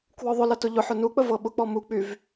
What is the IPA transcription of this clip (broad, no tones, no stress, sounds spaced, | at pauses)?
k w ɔ ðˤ ʊ l ɐ t ʊ ʎ ʊ ħ ʊ n u k͡p ə v ɤ ɓ ʊ k͡p ɔ m u k͡p y v